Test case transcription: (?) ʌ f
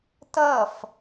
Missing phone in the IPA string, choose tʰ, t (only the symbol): t